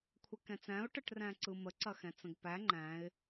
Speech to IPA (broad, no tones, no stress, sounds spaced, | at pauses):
kʷʰ ɛ k ɛ̃ t͡s æ̃ ʊ̯ ʈ ə ʈ r æ̃ ǀ ɯ m ə ǀ ɐ x ɛ̃ t͡s ə̃ ɡ p æ ŋ͡ǃ æ̃ ɪ̯